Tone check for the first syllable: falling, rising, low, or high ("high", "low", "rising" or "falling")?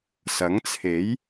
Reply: rising